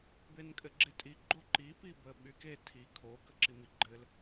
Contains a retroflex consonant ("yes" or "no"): no